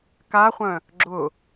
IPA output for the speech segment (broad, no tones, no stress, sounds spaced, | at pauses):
k a χʷ œ̃ | ɡ͡ǁ ʊ